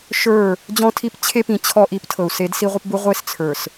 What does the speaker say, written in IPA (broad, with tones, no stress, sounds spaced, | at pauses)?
ʃ ə˞˦˨ | d͡ʑ ɔ̃˦ tʰ i˦ p t͡ɕʰ e˦ p ĩ˨ t͡ɕʰ ɔ˦ ʔ i˨˦ p tʰ ɤ˨ u̯ s e˨˦ d s i˦ ʁʷ ə˦ p b u˦ ʁʷ e˦ s t͡sʰ ə˞˨ s